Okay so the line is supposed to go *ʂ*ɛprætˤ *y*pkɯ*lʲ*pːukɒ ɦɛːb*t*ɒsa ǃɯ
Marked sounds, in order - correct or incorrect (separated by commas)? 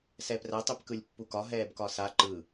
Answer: incorrect, correct, correct, incorrect